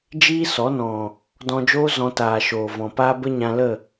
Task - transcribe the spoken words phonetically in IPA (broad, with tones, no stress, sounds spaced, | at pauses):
d͡ʒ iː˦ s ɔ˨˦ n ɔ̃˨ | d ɔ̃˧ d͡ʒ oː˦ z ɔ̃˧ t aː˨ ʃ oː˨ v ɔ̃˨ p aː˦ b ə˦ ɲ ã˧ l ə˦˨